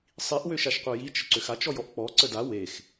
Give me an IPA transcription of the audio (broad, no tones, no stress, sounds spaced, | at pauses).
sˤ i ʔ w ø ʃ a ʃ qʷ œ j i t͡ʃ ə ǀ ø x a t͡ʃ ɔ j ɔ ʔ k͡p ɔ ǀ ə d a w e x